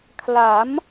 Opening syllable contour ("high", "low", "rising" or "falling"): rising